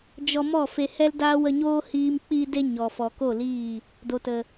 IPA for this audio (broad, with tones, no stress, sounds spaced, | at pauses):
d͡ʒ ɔ˧ m ɔ˦˨ f e˧ h ɛ˦ l d aː˦ w ə˧ ɲ oː˦ h iː˧ m k͡p iː˧ d e˧ ɲ ɔ˨ f ɔ˨ k o˦˨ l iː˦˨ | d o˨ t ə˨